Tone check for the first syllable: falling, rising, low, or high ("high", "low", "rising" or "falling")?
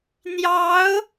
rising